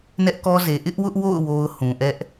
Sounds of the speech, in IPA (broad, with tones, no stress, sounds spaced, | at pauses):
n ɛ˦ ʔ k ɔ˦ z e˨ ʔ ɪ˦ ʔ w ʊ˦ ʔ w o̰˦˨ ʊ̯ w o˦ ʊ̯ h ũ˨ ʔ ɛ˦ ʔ